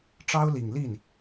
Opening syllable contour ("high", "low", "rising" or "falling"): high